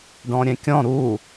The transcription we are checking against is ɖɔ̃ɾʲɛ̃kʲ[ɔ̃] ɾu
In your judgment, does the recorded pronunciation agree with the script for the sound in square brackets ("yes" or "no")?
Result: yes